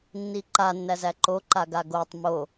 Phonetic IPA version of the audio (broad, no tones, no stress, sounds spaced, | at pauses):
nː i ǃ a nː æ z æ ǃ o ǃ a ɡ a ɡ o tˤ m o